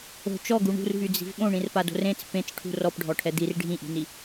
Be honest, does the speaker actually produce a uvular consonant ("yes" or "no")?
no